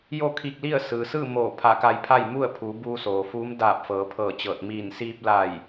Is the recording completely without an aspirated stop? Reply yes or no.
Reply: no